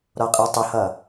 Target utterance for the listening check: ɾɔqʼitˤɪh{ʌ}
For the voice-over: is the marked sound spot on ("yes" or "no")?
yes